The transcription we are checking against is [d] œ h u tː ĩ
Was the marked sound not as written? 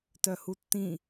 yes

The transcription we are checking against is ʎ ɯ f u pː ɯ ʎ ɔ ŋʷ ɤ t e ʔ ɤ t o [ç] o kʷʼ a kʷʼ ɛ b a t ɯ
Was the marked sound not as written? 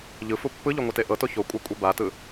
no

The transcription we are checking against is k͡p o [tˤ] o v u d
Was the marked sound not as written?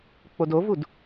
yes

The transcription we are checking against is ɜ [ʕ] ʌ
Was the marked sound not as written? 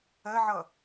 no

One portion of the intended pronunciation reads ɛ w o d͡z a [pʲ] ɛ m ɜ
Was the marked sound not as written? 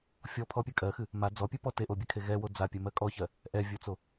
no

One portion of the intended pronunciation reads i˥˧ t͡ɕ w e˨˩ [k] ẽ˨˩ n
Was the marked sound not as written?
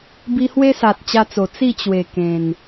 no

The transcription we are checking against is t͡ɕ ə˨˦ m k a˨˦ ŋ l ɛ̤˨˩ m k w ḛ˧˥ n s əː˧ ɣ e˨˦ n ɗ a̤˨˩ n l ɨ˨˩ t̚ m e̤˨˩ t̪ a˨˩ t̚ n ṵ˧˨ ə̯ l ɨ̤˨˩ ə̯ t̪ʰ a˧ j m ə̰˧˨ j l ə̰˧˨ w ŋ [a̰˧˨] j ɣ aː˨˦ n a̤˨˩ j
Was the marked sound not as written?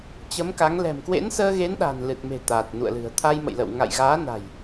no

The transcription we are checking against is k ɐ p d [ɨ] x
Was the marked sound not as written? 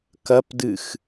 no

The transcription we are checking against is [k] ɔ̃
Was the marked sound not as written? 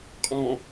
yes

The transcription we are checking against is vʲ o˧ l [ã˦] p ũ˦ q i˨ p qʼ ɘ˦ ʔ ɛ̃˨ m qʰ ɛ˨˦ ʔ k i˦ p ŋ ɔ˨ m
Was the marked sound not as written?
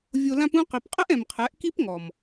no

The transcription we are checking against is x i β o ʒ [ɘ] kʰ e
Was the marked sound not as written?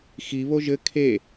no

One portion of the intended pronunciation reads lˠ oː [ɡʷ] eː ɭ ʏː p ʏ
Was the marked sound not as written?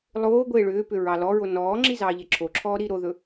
no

